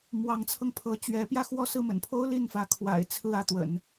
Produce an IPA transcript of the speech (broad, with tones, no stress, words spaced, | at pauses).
mwɑ˧˥ŋt͡sʰɤ˧ŋ pʰɤ˧˥t͡ɕɥɛ˧˥pjä˥˧ xwɔ˥˧sɹ̩˥˩mə̰˨˩npʰo˥ʊ̯ li˥˩nfä˧˥kʰwa̰˨˩ɪ̯ t͡sʰɹ̩˥˧ ä˥˩t̪wə̰˨˩˦n